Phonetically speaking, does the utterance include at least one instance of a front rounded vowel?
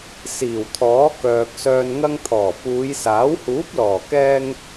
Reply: yes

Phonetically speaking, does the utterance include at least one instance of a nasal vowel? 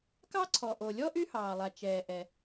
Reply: no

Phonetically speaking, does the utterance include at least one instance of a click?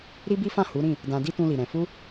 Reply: no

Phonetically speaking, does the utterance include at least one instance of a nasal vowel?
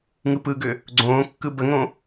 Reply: yes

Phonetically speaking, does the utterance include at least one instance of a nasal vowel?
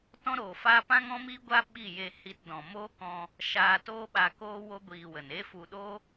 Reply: yes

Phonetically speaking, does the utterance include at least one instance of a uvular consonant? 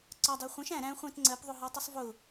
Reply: yes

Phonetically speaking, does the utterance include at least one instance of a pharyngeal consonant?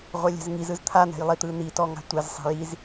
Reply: no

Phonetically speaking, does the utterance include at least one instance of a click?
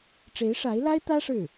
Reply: no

